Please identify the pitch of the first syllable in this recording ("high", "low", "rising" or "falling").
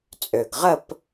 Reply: low